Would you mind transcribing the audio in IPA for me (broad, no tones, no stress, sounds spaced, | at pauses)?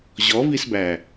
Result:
ʑ ɔ v i s b æ